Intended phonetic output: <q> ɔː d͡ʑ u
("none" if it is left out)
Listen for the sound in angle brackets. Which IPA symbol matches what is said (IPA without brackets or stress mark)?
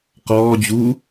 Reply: q